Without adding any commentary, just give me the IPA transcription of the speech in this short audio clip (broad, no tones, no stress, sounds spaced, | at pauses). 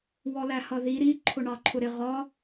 w ɔ l æ h ʌ ð i ɾ i ǃʰ ʊ ɳ ɑ ǃʰ ʊ ɾ ɪ ʁ ɒ